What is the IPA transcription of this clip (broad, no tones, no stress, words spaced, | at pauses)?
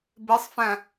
besˤfæ̃